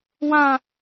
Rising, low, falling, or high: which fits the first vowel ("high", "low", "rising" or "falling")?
high